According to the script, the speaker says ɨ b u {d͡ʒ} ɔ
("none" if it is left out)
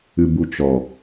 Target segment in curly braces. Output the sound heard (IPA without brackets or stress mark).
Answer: t͡ʃ